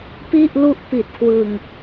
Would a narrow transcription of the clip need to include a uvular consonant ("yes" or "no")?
no